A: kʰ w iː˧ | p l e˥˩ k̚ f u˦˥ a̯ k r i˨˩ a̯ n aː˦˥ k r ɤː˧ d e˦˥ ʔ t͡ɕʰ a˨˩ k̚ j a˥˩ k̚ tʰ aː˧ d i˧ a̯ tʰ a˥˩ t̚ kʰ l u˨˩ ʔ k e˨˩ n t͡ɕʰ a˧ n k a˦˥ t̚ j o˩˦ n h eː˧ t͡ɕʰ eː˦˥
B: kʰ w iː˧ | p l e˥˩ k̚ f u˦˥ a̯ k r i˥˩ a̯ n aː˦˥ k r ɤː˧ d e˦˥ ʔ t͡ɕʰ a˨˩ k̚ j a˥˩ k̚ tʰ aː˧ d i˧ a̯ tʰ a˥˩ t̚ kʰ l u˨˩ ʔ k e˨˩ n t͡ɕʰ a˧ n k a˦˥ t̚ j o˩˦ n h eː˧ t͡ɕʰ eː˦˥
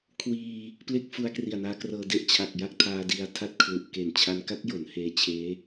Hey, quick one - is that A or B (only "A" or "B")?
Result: A